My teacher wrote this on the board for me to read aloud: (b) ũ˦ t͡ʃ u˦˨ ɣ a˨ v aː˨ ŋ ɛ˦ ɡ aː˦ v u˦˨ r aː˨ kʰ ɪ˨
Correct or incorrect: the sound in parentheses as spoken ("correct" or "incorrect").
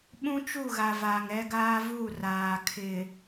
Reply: incorrect